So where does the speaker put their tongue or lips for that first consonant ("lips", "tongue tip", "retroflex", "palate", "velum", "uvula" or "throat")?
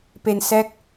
lips